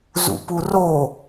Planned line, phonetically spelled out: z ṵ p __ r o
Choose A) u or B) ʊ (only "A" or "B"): A